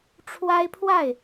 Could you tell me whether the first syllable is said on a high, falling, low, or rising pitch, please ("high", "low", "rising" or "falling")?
high